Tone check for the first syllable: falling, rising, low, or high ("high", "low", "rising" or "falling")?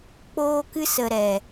high